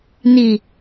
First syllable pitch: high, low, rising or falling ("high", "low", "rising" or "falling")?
falling